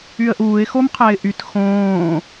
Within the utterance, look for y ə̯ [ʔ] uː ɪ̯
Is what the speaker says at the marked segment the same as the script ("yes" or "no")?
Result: yes